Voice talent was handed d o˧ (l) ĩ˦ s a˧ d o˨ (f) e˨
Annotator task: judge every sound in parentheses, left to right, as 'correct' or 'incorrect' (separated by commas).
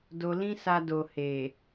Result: correct, incorrect